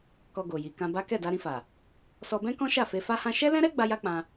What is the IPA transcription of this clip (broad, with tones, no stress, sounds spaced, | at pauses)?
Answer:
k ɔ˧ ɡ o˨ j i˨ k ã˧ b a˦ k ɛ˦˨ d a˧ ɾ ĩ˧ f a˨ | s ɔ˧ b ɛ̃˦ k ɔ̃˦ ʃ a˦˨ f e˧ f a˦ h ã˦ ʃ ɛ˦ l ɛ̃˦ ɾ ɛ˦ ɡ͡b a˦ j a˦ k͡p ã˧